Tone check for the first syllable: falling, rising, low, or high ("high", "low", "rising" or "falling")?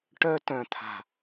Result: high